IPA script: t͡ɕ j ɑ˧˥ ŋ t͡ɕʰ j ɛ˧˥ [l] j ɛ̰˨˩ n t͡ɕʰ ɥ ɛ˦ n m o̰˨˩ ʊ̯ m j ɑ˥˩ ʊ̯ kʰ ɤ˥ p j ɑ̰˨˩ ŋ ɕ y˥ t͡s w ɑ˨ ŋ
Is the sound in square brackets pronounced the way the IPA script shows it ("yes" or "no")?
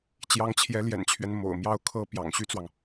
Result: yes